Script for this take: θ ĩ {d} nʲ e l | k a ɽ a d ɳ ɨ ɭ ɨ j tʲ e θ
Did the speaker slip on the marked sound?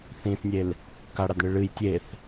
yes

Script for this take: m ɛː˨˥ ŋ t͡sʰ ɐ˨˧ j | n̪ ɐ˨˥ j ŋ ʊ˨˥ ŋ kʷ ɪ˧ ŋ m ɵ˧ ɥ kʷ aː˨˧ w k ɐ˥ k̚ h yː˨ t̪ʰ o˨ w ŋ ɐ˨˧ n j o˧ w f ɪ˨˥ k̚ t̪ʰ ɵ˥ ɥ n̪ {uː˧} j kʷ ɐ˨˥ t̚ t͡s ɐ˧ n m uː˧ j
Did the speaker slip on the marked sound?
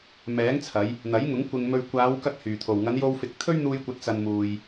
no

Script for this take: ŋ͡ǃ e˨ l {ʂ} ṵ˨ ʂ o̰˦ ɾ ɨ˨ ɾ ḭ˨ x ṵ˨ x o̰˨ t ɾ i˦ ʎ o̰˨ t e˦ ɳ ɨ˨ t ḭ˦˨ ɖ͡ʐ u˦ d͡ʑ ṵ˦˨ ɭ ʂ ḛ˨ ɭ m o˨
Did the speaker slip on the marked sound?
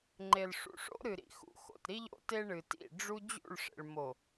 no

